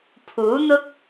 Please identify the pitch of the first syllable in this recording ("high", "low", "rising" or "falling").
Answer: rising